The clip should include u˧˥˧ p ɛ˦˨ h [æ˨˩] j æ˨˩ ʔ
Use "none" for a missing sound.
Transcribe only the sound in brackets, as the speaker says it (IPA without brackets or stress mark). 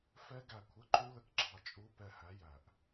æ˨˥